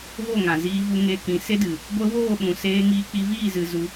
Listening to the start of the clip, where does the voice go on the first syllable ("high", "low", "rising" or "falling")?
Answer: falling